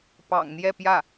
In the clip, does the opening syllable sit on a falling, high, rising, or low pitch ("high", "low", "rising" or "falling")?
low